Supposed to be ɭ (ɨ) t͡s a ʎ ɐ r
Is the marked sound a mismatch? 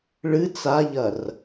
no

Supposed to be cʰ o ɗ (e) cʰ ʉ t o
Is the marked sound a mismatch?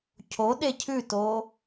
no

